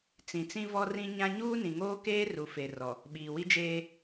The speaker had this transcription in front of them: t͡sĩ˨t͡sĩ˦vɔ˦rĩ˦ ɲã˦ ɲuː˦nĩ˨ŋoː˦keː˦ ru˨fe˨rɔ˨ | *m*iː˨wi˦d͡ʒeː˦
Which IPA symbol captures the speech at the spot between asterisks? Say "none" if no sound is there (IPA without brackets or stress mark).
ɓ